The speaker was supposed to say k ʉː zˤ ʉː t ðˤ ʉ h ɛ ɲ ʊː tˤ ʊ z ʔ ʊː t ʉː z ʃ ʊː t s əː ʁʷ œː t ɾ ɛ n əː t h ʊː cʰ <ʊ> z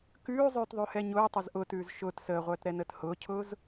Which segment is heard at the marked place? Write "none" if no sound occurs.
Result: ʊː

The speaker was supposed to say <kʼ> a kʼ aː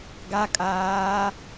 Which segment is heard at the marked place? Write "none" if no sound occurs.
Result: ɡ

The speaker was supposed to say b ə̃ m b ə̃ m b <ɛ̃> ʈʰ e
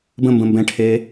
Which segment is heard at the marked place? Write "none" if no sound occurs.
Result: ɛ̃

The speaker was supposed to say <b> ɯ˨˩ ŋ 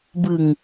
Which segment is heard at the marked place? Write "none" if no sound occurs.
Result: b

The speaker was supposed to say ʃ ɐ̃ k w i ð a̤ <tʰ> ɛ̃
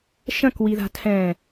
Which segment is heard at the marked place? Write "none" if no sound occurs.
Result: tʰ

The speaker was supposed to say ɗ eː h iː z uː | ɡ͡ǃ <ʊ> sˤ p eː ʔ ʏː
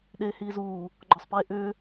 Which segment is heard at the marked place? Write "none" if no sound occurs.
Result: ɔ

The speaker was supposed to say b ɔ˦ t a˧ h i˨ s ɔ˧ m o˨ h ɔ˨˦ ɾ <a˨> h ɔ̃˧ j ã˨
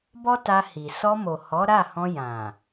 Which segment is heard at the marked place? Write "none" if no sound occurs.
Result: a˦˨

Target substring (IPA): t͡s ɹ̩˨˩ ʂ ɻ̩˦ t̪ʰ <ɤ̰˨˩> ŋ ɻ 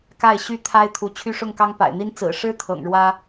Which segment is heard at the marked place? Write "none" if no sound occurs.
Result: ɤ̰˨˩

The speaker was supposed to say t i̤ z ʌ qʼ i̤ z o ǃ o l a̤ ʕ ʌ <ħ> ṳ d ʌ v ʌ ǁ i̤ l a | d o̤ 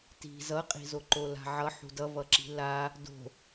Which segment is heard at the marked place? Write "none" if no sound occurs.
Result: ħ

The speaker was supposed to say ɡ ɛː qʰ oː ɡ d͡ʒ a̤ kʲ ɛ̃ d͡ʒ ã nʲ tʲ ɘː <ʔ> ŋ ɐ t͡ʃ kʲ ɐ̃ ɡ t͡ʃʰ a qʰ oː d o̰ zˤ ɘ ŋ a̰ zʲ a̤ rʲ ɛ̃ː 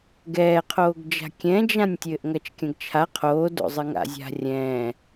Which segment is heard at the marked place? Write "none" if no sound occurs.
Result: ʔ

